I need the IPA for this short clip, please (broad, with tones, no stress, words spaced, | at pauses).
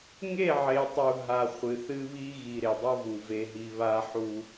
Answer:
ŋe˦˨ʕe˨tˤu˨ ɦa˨ χʷɨ˨θɨ˦βi˦ ɣi˨ ɾe˨dˤɐ˦vu˨ ve˨ɦi˨ βa˦ħu˦